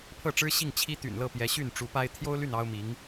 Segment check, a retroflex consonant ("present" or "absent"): present